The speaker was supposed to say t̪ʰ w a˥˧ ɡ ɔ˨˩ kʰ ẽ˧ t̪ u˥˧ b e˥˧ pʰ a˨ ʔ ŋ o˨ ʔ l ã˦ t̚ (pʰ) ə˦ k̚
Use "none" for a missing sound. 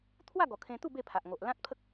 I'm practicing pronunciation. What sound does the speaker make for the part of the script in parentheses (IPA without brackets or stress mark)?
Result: pʰ